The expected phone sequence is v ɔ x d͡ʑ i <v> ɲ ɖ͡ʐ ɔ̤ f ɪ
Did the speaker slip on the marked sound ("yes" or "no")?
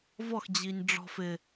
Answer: yes